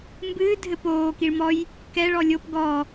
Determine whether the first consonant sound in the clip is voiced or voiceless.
voiced